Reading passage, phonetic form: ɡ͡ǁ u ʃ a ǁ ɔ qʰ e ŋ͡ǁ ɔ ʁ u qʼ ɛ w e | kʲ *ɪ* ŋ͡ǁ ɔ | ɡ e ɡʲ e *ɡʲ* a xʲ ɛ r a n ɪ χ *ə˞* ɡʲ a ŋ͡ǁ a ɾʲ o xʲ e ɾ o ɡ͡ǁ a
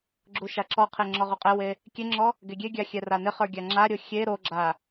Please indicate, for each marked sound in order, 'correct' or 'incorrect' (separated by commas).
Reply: incorrect, correct, correct